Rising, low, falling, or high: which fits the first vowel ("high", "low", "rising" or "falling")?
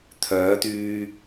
rising